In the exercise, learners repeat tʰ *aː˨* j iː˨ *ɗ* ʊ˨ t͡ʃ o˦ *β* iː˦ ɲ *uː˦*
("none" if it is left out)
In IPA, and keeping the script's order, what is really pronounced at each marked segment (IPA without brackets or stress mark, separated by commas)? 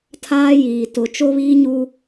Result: aː˦, t, β, u˦